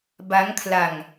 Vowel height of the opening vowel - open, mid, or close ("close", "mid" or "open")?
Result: open